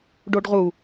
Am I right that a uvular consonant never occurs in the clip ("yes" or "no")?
no